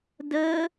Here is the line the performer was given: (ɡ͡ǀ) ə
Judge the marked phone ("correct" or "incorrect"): incorrect